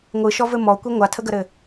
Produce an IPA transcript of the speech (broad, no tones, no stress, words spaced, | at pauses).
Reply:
ŋʷɯʃɔvɘ mɔkʷi ŋʷatʰəɡəɾɘ